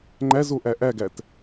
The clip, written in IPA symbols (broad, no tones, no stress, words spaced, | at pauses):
ŋ͡ǃæzoʔæ ʔæɡæt